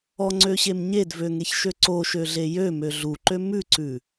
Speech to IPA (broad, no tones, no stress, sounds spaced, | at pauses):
ɔ ŋ͡ǀ ø ɕ e m ɲ e d v ø ŋ e ç ʃ ø ǀ o ʃ ø ɮ e j ø m ø ɮ u ǃ ø m ʉ ǀ ʉ